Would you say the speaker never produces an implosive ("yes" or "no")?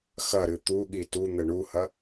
no